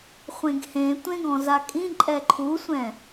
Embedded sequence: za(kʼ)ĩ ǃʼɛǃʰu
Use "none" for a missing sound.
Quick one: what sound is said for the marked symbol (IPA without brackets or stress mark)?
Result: kʼ